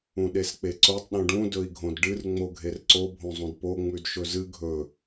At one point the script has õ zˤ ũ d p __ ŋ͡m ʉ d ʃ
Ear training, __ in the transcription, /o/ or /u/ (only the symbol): o